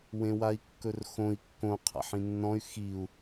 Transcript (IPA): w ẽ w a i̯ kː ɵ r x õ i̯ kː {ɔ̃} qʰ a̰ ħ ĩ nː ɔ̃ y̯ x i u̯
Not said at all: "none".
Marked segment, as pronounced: õ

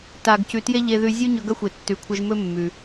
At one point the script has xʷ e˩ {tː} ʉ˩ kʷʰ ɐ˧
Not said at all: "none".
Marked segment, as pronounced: tː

